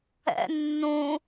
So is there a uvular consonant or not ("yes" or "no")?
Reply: no